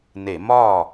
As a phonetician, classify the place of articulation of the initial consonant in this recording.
alveolar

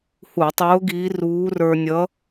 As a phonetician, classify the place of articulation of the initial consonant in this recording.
glottal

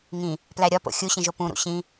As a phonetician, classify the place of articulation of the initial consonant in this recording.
velar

